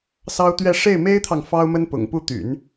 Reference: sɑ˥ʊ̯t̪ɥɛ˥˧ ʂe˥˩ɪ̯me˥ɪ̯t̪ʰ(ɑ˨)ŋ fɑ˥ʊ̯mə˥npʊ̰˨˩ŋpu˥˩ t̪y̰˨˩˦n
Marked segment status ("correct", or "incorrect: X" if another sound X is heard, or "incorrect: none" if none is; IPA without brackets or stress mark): correct